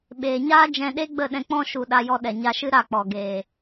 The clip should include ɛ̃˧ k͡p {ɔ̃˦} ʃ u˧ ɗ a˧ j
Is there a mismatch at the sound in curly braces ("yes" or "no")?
no